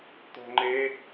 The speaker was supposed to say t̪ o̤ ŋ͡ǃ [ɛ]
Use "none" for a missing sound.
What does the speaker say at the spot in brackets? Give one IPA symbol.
e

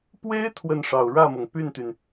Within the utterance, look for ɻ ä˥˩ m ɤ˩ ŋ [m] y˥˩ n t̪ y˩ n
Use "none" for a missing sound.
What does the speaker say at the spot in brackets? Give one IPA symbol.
p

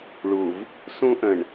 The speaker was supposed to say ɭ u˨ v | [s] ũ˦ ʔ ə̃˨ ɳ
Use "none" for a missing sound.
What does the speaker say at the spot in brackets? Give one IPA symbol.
s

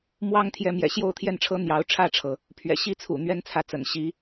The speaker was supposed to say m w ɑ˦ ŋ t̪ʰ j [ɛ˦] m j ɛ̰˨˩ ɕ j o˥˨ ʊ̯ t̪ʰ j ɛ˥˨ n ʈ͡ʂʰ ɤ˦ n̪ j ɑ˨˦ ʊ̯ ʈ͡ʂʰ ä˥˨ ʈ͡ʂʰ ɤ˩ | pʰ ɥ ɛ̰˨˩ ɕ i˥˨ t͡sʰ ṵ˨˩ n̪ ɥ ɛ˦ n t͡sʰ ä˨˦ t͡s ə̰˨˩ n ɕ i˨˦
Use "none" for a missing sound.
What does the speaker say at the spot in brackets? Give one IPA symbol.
ɛ˨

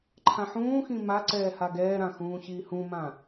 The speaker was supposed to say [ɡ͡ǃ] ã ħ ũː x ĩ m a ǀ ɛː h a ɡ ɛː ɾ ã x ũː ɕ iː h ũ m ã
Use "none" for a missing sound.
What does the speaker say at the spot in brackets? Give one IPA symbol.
ǃʰ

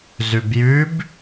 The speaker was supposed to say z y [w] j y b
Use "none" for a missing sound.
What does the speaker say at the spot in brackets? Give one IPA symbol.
b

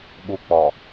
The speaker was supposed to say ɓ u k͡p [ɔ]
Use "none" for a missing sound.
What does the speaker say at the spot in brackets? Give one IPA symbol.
ɔ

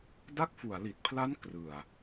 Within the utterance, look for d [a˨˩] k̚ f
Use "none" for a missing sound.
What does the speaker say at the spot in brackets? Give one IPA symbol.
a˦˥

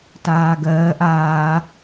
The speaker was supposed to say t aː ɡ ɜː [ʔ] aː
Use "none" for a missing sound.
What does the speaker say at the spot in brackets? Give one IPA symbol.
ʔ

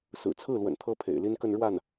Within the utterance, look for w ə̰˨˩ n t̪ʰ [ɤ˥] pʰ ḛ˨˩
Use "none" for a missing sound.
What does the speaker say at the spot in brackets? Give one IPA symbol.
ɤ˥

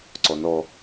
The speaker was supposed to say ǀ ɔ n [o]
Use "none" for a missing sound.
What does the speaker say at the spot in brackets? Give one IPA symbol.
ɔ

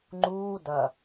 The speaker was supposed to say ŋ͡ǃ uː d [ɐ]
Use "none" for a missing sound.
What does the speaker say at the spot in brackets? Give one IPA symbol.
ɐ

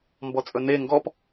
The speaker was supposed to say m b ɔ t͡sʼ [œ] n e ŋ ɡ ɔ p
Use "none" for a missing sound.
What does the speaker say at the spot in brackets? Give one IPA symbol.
ɵ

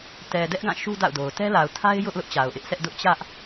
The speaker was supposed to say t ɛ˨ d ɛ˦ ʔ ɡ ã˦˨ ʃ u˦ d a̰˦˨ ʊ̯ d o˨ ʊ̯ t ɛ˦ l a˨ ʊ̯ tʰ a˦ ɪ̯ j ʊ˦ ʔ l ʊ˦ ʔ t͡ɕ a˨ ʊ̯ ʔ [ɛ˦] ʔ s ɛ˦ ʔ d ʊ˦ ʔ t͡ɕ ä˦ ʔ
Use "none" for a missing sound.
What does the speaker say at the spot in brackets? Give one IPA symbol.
ɪ˦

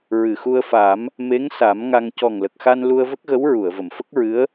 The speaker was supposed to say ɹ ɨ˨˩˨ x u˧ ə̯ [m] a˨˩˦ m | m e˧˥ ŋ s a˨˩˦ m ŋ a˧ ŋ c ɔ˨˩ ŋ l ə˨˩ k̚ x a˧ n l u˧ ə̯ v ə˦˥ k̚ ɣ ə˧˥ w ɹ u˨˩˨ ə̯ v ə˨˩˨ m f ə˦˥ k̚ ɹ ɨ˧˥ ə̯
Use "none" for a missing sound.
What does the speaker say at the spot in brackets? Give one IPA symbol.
f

